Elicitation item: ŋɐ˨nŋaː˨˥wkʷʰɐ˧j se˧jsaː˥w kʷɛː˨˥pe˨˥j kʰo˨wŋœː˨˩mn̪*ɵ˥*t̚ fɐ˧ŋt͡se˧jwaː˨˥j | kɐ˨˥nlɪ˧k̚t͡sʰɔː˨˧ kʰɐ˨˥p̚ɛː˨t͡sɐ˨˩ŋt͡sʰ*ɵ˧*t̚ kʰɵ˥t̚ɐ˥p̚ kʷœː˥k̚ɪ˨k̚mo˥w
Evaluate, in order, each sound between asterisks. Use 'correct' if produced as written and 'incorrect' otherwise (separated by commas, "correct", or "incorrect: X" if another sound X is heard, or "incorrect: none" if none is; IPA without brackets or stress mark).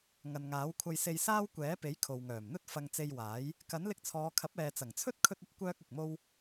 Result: correct, incorrect: ɵ˥